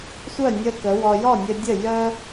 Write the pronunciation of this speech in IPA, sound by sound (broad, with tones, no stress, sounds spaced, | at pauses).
sʷ œ˥˩ nʲ ə˧ k ə˩˥ w ɔ˧ j ɔ˥˩ nʲ ə˧ dʲ ə˥˩ j œ˥